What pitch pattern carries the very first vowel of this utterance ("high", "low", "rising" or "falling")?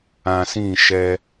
low